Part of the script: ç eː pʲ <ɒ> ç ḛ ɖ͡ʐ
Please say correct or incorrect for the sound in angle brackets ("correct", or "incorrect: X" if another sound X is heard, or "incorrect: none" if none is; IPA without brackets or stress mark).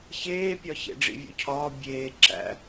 correct